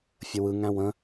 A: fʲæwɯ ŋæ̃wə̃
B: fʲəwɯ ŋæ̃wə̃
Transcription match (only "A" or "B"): B